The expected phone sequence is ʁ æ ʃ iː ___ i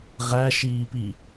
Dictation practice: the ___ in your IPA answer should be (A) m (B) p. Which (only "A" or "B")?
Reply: B